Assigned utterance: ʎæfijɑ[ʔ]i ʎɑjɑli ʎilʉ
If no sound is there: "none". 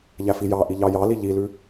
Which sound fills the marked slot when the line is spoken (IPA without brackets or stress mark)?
ʔ